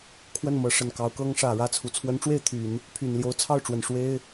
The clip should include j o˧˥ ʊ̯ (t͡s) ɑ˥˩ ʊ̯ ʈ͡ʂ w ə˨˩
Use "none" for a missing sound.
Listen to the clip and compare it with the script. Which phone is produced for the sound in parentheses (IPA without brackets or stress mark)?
t͡sʰ